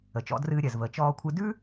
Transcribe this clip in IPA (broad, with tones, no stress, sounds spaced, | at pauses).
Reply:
ə˩ t͡ʃ ɔ̰˧ d r ɨː˧ ɾʲ ɜ˩ z v əː˩ t͡ʃ ɔː˧ kʷʰ ɨ˧ d ʉ˥